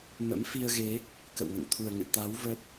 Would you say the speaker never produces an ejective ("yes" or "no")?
yes